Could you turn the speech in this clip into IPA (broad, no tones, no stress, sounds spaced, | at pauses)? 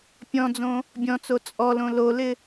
pʲ ɔ̃ d͡z õ | bʲ ɔ̃ t͡s o t͡sʼ ɔ l õ l o l ɪ